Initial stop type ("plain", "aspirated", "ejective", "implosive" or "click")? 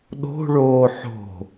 implosive